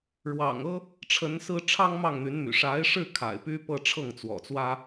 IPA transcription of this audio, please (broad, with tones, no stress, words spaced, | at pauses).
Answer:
ɻwɑ̰˨˩ŋɤ˥ | ʈ͡ʂʰə˧˥nsɹ̩˥ ʈ͡ʂʰɑ˥ŋmɑ˥˩ŋn̪y˧˥nmy̰˨˩ ʂa˧˥ɪ̯ʂɻ̩˥˩ kʰa̰˨˩ɪ̯py˥pɤ˥˧ ʈ͡ʂʰɤ˥˩ŋt͡swɔ̰˨˩t͡swä˥